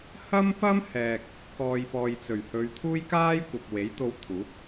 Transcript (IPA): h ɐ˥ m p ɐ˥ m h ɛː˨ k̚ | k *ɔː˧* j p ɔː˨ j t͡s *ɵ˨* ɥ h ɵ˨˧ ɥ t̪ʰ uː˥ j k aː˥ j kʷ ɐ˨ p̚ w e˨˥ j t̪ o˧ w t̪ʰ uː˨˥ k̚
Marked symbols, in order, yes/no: no, no

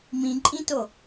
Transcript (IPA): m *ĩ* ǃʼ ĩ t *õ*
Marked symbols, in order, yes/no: yes, no

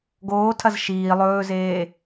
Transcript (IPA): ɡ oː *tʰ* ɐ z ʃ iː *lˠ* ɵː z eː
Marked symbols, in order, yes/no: yes, yes

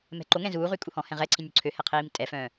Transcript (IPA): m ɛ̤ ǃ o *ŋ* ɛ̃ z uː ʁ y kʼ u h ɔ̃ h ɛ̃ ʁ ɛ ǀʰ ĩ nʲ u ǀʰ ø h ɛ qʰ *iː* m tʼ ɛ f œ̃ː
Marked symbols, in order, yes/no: yes, yes

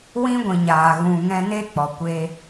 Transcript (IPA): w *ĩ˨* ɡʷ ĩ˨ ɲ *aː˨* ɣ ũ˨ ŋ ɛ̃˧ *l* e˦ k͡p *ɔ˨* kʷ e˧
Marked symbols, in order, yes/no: no, yes, no, yes

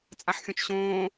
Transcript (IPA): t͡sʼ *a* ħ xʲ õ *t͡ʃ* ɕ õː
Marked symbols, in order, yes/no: yes, yes

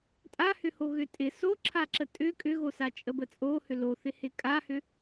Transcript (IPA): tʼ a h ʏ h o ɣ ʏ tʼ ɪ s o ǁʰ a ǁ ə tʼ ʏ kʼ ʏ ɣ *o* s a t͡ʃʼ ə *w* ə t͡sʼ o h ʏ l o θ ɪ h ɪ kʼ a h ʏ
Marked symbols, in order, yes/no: yes, no

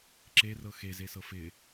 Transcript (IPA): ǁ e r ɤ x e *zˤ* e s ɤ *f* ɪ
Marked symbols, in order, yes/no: no, yes

